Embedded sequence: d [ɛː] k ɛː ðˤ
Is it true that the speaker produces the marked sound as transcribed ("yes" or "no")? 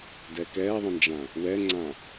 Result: no